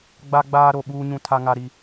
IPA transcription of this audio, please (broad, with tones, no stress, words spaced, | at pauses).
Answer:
ɡ͡ba˦ɡ͡baː˦ ɾo˦˨ɓuː˦ɲũ˦ tʰa˦ŋa˦ɾi˦